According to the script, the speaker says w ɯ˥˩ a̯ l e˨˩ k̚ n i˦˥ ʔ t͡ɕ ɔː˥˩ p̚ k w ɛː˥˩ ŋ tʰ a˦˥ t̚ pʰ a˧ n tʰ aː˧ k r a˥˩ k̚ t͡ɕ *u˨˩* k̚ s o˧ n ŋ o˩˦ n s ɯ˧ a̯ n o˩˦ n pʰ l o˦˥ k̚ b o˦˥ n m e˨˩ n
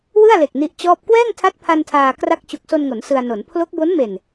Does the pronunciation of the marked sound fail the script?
no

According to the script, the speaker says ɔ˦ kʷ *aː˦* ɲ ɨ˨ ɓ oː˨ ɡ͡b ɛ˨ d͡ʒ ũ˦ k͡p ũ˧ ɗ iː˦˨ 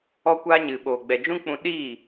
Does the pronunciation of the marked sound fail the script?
no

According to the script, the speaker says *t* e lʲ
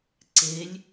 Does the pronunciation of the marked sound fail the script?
yes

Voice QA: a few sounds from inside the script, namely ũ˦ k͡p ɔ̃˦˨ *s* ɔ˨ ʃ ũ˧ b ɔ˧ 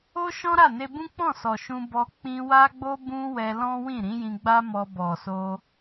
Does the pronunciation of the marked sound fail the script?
no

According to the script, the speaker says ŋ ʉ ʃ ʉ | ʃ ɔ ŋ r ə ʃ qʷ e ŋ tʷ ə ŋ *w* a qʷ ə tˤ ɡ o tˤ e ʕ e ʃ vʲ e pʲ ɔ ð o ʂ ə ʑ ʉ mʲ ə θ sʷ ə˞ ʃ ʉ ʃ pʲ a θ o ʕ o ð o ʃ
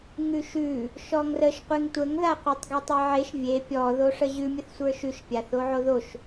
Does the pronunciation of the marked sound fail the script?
yes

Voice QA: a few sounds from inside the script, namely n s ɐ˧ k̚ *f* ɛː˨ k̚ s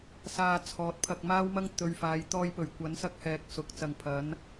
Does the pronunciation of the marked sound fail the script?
yes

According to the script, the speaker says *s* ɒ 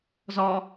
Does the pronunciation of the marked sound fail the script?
yes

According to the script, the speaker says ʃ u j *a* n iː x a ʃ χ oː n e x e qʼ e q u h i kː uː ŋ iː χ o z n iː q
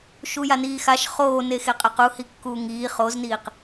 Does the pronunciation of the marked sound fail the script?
no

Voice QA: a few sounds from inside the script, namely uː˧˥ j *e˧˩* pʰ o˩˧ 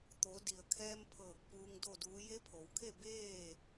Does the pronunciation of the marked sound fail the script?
yes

